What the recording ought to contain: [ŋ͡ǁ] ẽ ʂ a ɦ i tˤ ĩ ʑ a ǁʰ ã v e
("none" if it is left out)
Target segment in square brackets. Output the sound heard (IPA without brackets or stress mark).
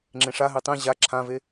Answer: ŋ͡ǁ